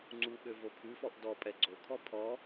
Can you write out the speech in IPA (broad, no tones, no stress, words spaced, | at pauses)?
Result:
ŋ͡ǀuɠø vopʰʉfɔʔ dɔpʼɛ ɡ͡ǀokʰɔ pʰɔ